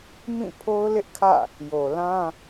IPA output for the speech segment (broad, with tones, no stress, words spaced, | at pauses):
mĩ˦˨pʰo˦ʊ̯ lɪ˦ʔkʰä̰˦˨ | jo˨lã˦